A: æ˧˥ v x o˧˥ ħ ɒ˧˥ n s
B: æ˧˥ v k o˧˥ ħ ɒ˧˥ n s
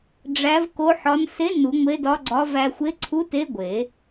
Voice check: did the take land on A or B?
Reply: B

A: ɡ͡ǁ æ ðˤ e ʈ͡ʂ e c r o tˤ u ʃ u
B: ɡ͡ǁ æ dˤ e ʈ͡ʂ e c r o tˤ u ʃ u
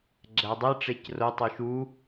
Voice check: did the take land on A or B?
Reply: B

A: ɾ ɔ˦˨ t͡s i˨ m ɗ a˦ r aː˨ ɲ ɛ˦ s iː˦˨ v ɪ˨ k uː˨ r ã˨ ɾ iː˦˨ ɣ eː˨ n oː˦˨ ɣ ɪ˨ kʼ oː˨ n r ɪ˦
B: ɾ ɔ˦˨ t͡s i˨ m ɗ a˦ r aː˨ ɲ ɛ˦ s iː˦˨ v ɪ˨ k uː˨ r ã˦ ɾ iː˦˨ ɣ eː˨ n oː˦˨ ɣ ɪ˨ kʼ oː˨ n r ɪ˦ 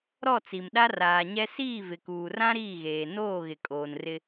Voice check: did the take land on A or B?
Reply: B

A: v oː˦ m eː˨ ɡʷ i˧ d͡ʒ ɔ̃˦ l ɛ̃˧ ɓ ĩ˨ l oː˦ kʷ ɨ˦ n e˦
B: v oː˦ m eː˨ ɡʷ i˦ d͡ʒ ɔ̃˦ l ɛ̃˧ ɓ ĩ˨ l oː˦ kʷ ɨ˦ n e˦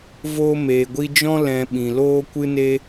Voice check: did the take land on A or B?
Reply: A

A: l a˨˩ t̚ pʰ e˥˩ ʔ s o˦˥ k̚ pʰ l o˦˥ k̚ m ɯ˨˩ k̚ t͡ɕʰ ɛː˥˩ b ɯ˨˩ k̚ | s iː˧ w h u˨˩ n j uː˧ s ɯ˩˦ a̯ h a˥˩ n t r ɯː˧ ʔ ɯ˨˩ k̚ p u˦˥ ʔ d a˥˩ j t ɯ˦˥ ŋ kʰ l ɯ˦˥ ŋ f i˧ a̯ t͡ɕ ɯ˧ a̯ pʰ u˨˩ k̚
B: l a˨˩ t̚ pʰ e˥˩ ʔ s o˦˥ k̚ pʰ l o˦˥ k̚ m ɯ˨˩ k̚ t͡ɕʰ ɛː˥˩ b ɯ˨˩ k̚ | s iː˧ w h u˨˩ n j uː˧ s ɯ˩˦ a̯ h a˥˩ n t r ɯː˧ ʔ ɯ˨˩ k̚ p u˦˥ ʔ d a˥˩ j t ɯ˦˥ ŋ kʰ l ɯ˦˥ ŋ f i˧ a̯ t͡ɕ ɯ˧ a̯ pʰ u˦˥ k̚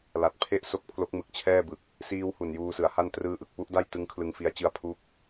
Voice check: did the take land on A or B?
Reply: B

